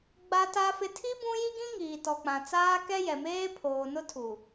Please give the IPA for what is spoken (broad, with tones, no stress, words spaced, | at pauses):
ɡ͡ba˦ta˦fɪ˦ tʰi˦ bũ˦ ji˦ɡĩ˦ ŋiː˨tɔ˨k͡pã˨ t͡saː˦kɛ˦jɛ˨ meː˦pʰoː˨ nʊ˦tʰu˨